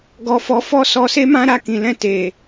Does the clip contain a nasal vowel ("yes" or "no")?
yes